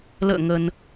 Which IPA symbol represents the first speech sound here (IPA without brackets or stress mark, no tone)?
l